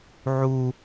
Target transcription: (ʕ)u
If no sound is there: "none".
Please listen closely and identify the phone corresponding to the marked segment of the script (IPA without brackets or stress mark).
ʕ